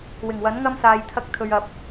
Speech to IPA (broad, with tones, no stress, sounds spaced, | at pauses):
w ɪ˨˩ ŋ w ɐ˨˥ n ŋ ɐ˥ m s aː˨ j t̪ʰ ɐ˧ k̚ t̪ʰ ɵ˨ ɥ ɐ˨ p̚